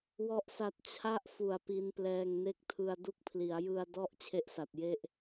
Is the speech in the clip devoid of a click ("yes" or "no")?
yes